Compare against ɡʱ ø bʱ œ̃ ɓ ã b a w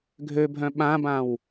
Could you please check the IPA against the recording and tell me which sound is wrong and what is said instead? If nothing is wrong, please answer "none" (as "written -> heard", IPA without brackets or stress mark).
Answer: a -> ã